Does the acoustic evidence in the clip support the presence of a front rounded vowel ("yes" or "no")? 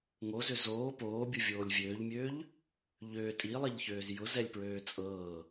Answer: yes